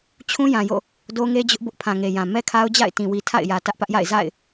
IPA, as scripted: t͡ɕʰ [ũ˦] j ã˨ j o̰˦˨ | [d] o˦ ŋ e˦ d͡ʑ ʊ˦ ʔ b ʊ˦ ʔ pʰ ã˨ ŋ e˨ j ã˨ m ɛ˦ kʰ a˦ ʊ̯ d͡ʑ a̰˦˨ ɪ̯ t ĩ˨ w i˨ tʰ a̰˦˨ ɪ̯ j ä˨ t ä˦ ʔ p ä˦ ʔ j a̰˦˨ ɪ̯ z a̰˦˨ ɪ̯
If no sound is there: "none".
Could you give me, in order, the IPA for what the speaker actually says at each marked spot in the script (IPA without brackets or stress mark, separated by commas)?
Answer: ũ˦, d